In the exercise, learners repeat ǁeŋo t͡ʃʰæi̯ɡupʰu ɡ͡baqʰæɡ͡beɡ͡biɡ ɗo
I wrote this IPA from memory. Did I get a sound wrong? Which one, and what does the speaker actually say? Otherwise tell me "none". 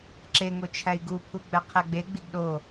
a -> æ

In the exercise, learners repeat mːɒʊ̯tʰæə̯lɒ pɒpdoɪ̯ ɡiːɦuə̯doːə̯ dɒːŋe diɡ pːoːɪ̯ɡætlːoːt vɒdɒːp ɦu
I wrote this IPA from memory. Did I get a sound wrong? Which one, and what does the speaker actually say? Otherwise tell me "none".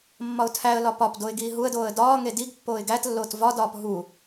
none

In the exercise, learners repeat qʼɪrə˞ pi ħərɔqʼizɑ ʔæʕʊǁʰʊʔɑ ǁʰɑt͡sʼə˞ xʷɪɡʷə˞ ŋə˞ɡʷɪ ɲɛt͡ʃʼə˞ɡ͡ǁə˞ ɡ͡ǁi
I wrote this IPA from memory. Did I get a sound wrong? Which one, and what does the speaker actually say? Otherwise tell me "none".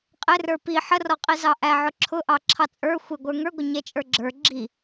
none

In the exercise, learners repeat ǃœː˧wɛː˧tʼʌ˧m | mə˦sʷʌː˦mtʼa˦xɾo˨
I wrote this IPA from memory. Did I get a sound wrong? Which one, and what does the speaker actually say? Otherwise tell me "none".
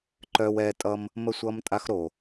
none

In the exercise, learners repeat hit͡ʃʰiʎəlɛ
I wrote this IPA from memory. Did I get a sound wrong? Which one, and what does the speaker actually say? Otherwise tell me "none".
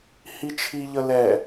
none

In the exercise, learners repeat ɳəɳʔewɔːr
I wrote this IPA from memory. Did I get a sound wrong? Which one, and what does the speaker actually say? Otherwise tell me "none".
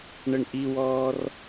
e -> i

